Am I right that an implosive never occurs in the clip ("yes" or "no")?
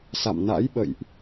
no